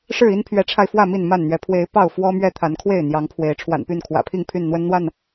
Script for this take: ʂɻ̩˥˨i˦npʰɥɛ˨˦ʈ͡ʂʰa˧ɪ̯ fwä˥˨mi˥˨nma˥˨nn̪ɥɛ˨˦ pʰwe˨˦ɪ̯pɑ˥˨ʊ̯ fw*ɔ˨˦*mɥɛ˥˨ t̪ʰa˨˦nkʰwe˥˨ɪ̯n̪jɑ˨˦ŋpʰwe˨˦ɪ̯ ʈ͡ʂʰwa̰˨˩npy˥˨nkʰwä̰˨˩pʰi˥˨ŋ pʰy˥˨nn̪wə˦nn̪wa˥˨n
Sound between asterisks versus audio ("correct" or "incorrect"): incorrect